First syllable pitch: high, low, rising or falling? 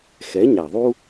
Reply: rising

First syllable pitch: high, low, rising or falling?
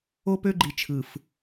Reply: high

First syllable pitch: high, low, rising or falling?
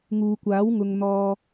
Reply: low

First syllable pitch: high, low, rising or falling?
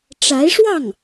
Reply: rising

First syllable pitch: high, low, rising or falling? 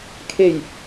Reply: low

